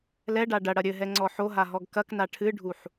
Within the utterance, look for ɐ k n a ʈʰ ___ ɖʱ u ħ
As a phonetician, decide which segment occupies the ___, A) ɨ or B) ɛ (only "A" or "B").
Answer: A